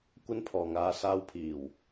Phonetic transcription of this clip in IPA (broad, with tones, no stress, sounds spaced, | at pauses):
kʷ ɐ˥ n pʰ ɔː˨ ŋ aː˧ s aː˧ w pʰ iː˨˩ w